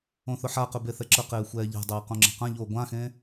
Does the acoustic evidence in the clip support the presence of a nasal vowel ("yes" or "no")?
yes